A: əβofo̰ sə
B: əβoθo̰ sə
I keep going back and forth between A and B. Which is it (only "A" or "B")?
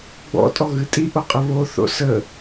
B